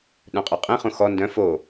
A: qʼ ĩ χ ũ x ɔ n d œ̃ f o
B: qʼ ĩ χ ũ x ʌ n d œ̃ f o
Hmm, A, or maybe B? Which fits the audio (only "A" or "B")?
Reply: A